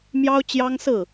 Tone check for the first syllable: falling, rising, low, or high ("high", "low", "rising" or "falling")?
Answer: high